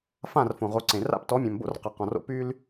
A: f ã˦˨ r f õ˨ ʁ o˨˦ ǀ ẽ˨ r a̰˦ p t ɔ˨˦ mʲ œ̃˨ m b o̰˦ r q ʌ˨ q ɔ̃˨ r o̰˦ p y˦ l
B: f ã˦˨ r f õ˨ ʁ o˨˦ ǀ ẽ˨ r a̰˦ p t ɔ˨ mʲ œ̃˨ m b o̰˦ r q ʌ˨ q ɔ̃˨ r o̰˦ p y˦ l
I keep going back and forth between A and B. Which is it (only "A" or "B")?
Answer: A